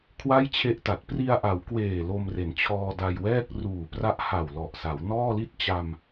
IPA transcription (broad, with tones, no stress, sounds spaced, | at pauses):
kʰ w a˥˩ j t͡ɕʰ e˦˥ ʔ t a˨˩ t̚ p r i˧ a̯ ʔ a˩˦ w k w eː˨˩ l o˧ m r e˩˦ n t͡ɕʰ ɔː˧ d a˧ j w ɛː˥˩ k̚ r uː˨˩ p r a˦˥ ʔ h a˨˩ w l ɔ˨˩ ʔ s a˩˦ w n ɔː˥˩ l i˥˩ t̚ t͡ɕ a˧ m